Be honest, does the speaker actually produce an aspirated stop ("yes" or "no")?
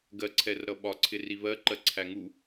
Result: yes